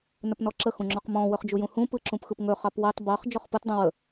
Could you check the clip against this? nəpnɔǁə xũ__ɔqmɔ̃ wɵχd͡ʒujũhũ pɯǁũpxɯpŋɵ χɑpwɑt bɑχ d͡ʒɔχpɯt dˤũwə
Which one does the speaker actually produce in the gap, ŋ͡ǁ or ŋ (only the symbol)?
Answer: ŋ͡ǁ